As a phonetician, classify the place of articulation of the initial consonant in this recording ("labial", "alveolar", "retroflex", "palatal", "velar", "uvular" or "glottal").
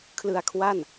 velar